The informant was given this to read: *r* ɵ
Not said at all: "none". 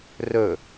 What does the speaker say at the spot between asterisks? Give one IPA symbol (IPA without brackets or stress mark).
r